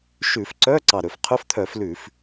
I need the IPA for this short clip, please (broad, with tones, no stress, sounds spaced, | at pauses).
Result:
ʃ ʉ˧˩˧ f ǀ œ˧˥˧ ǀ ɑ˨˩ ɾ ɵ˧˩˧ f qʰ ɵ˧˥˧ f t̪ʰ œ˧˩˧ f l ʉ˧˩˧ f